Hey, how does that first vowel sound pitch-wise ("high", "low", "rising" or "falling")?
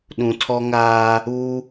low